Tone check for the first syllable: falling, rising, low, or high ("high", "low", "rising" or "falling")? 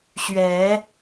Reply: rising